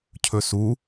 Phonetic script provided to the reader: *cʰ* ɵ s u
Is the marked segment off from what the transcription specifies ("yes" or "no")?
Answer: no